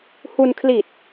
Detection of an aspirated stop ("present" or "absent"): present